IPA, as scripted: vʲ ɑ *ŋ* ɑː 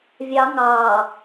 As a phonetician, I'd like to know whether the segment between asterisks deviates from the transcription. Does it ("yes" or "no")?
no